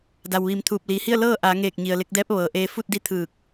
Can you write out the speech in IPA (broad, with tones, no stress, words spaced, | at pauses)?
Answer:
da˩wʋiː˩˧mt̪ʰuː˧˩p̚ liː˩hi˥˨ə̯ lɤː˥˨ʔaː˩˧ŋeː˧˩k̚ ɲi˩ə̯le˧k̚dɛː˧˥p̚ʋɤː˩ ʔeː˧ fu˥˨t̚di˧˥t̪ʰɯː˧˩k̚